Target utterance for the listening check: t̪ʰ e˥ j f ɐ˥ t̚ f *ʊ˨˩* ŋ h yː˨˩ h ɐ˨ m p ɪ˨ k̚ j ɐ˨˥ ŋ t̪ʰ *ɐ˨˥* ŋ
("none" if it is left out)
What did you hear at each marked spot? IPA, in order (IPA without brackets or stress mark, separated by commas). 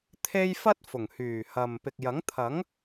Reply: ʊ˨˩, ɐ˨˥